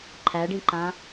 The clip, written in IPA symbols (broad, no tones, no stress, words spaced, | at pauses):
ǃʰæɖĩǃã